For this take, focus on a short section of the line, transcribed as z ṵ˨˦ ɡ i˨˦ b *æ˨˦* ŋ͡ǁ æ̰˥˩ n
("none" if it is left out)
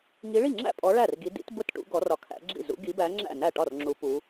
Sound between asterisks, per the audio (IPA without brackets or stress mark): æ˨˦